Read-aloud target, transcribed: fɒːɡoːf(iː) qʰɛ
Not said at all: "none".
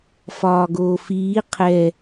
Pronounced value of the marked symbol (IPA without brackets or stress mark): iː